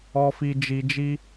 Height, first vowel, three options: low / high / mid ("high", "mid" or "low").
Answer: mid